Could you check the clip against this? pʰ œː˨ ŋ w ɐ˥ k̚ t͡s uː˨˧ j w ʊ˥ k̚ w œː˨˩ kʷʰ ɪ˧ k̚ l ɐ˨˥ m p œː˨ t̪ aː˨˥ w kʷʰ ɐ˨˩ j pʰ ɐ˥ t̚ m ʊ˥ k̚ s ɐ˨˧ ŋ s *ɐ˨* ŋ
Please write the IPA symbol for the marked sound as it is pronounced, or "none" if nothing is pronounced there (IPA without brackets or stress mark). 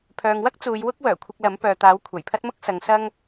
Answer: ɐ˥